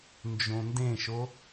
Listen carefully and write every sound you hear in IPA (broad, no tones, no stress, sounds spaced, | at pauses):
n d͡ʒ õ n d ẽ ʃ o